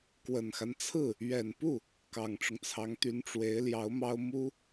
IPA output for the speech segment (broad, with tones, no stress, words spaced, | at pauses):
kwə˨˩nxa˦nt͡sʰɹ̩˥˩ | ɥɛ˨˩npu˥˩ | kɑ˨˩ŋʈ͡ʂʊ˦ŋt͡sʰɑ˧˥ŋt̪y˧˥n ʈ͡ʂwe˧˥ɪ̯ljɑ˧˥ʊ̯mɑ˥ʊ̯ mu˥